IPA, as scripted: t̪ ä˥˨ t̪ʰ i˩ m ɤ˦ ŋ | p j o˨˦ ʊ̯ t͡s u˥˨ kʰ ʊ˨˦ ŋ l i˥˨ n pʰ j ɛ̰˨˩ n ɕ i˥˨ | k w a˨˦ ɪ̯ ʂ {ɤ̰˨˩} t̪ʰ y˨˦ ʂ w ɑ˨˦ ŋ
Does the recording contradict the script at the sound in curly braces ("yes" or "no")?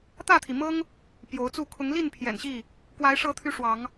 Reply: yes